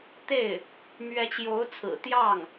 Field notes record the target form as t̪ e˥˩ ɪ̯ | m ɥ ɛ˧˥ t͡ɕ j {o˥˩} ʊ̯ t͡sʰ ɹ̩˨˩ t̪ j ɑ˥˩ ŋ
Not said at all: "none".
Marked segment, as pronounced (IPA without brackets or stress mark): o˧˥